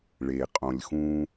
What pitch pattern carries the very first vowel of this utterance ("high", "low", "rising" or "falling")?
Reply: low